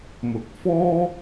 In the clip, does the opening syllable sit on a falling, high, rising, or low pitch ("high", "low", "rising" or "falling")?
rising